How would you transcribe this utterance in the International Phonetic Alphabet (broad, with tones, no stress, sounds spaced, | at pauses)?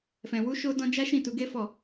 f ɛ̃˨ w u˧ ʃ o˧ d ɔ̃˧ d͡ʒ a˦ ʃ ĩ˦˨ t u˨˦ ɡ e˦ f ɔ˦˨